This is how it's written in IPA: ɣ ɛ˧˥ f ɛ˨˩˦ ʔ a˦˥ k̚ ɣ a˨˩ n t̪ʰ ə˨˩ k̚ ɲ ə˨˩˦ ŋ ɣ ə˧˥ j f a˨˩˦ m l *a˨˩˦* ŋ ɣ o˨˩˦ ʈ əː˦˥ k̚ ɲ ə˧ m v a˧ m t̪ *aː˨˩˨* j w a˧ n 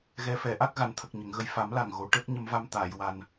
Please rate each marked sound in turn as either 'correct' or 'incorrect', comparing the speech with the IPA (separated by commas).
incorrect, correct